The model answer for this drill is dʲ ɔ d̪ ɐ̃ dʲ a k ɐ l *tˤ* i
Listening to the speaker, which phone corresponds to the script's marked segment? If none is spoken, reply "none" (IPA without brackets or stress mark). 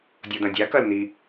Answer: n̪